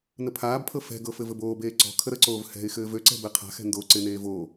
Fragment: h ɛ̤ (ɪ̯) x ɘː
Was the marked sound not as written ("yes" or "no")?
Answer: no